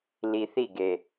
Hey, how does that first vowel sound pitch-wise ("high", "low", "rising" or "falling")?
low